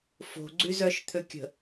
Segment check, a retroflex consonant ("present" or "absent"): absent